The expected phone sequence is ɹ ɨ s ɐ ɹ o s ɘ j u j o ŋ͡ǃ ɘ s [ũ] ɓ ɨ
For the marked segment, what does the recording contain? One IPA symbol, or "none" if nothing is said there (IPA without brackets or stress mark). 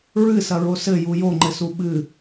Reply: u